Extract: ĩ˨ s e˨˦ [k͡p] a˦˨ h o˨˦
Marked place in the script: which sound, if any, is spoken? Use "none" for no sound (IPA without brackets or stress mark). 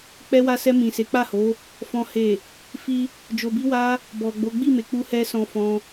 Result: k͡p